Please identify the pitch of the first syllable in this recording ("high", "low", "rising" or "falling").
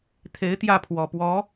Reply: rising